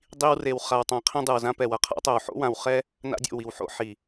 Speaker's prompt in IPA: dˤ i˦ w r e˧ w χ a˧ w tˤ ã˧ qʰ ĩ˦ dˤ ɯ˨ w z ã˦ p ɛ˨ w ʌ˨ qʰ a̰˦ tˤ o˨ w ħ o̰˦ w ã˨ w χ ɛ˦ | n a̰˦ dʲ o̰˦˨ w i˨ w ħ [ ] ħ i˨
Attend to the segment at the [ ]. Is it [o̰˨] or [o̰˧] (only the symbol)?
o̰˧